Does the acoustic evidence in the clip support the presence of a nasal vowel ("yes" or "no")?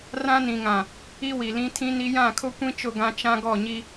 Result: yes